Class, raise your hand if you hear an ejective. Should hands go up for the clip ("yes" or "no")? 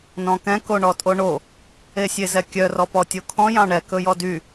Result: yes